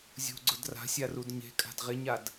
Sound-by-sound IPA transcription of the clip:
zʲ ṳ ɡ͡ǀ ʊ d r a̤ sʲ a r u d ɲ e̤ kʼ a̤ d ʁ ɪ ɲ a d

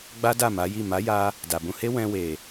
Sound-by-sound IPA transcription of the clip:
ɡ͡b a˦ d a˦˨ m a˨˦ j i˦˨ m a˨˦ j a˧ | d a˨ b ũ˧ h e˦ w ɛ̃˧ w e˨

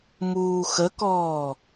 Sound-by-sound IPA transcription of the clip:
m uː x ə k ɔː

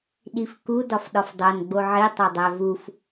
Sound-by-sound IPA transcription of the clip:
ɗ i f k u d ɒ f ɗ ɒ f dˤ o n ɡ͡b o ʕ i tˤ o dˤ æ v u f

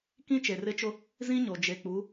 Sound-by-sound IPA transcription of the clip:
k ĩ˦ t͡ʃ e˨ r ɪ˦ t͡ʃ ʊ˦ | z ĩ˦ ɲ o˨ d͡ʒ e˨ k͡p u˨˦

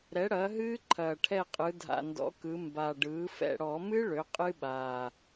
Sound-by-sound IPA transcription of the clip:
ɾ ɛ˩˥ ɽ ɐː˩˥ ɦ ɨː˦˥ ǃʰ ɐː˨˩ ʈʰ ɛ˦˨ qʼ ɯ˩˧ dʱ a̰˨˩ n d ɔ̰˩˥ k ɯ˩˧ m b a˨˩ ɖ ɯː˩˥ f ɛ̰˦˨ ɽ ɔ˧˩˧ m ɨ˦˥ ɭ ø˩˥ qʼ ɨ˦˥ ɓ aː˨˩

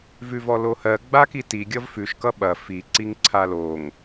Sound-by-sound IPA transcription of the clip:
v ʉ v ɔ l o h ɜ ɡ͡b a k i t i ɡʲ ʌ v f ʉ ʃ k ʌ ɓ ɐ f i ǀ i ŋ ǀʰ a l o ŋ

